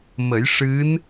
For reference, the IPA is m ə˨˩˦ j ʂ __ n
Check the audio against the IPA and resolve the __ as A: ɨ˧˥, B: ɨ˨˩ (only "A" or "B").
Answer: A